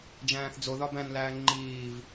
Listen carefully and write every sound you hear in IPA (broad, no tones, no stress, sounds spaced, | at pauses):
d͡ʒ æ̃ː θ d͡z o ð ɒ b æ̃ n l æː ŋ͡ǃ iː v